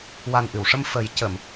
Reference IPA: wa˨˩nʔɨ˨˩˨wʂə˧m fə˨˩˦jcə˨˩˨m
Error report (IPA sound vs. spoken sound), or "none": none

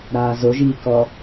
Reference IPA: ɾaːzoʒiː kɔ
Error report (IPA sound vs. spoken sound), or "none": none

